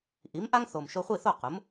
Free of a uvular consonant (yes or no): no